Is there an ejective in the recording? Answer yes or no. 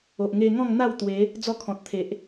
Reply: no